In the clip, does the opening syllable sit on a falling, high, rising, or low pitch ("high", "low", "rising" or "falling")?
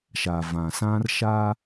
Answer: low